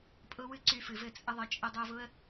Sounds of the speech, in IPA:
pʼ ʊ˦ w ɨ˦ ǀ y˧ f ɨ˨ v ɘ˦˨ t͡sʼ ə˦ ðˤ ə˧ t͡ʃʼ ə˧ dˤ o˧ v ʊ˦ ə̯

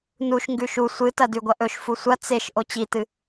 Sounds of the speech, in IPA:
n u ʃ ŋ ɡ ʉ ʃ u sʷ ɨ t ɐ d ʉ ɡʷ ɐ ʔ ɵ ʃ f u sʷ ɐ t͡s e ʃ ʔ o t͡ɕ i t ɨ

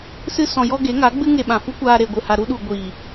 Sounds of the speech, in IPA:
s ɨ˧ s ɔ̃˨ j ɔ˧ ɡ e˨˦ ŋ a˨˦ ɡ͡b ɨ˦ ŋ e˧ ɓ ã˨ f u˦ kʷ aː˧ ɾ e˨ ɡʷ ɨ˨ h a˨ ɾ u˧ ɗ u˨ ɡʷ iː˨

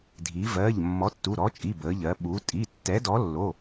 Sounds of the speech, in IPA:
dʱ i˩˧ v ɜ˩˧˩ ʎ mː ɔ˨˥ tː u˩˧˩ ɾ ɔ˨˥ t͡ʃʼ i˩˧˩ b ə˩˧ ʎ ɜ˩˧ ɓ u˩˧ tʼ i˩˧˩ tː ɛ˨˥ d ɔ˨˥ lː o˩˧˩

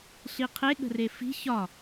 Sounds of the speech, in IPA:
ɬ i qʰ e ɠ ə̤ r e f i̤ ç ɒ

